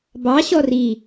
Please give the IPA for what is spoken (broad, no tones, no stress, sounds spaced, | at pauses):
b ɑ ɕ ɔ r i